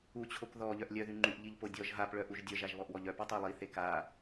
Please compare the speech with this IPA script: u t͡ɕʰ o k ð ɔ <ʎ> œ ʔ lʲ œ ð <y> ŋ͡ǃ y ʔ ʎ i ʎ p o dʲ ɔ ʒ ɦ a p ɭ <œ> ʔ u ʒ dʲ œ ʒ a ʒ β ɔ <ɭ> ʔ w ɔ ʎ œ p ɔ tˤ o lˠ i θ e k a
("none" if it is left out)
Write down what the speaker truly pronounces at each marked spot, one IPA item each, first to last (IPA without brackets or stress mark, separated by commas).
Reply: ʎ, y, œ, none